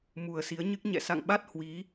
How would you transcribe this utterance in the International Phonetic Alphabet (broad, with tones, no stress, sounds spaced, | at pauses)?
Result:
m u˨˩ ə̯ s i˨˦ ə̯ ɲ ɨ˦˥ k̚ ɲ ɛ̰˧˨ s a̰˧˨ ŋ ɓ a˦˥ t̚ h w i˨˦